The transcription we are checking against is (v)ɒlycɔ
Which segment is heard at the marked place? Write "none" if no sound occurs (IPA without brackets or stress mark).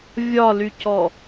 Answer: vʲ